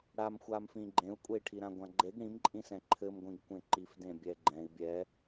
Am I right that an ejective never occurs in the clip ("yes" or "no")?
no